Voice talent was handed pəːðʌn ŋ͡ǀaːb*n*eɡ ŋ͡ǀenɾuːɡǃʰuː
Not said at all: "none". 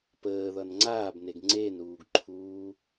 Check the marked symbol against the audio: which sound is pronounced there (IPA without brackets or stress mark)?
n